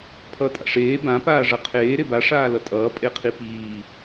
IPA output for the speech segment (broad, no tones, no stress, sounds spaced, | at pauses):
pʰ ʌː tʼ a̰ ʂ eː b ã p aː ʐ ʌ qʰ eː ɾ e b a ʂ aː l ʌ tʼ ʌː pʼ e qʰ i p iː